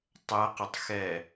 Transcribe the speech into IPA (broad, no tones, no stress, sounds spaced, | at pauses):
tˤ ɛ q ɘ tˤ x ɛ